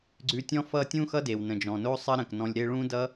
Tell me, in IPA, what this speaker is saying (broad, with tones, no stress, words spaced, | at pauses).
ɡ͡ǀʉ˧tʲɔ̃˦ fʌ˦ tʲũ˦xʌ˦de˨w nə̃˨d͡ʒɔ̃˨no˦ sˤə˦ɾə̃˨knɔ̃˧lʲɾe˦ ɭũ˦dʌ˦